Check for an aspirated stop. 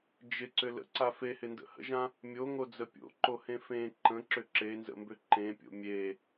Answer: absent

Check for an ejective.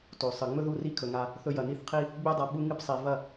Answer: absent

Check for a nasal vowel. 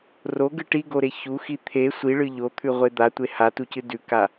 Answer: absent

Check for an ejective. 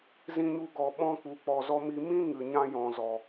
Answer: absent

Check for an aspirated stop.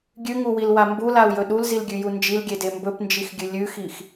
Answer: absent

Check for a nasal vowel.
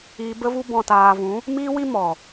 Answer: present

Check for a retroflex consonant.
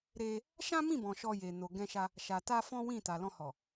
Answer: absent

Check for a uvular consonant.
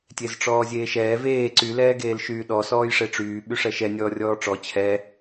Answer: absent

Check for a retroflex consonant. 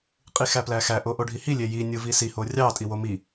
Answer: present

